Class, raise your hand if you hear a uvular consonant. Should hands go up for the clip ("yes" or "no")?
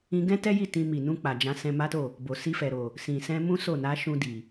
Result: no